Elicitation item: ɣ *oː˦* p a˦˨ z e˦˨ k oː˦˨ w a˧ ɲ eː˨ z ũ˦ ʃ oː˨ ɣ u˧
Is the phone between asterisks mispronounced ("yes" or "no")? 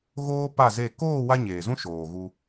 no